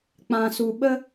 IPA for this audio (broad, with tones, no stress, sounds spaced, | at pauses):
k͡p ã˧ s u˧ ɓ ə˦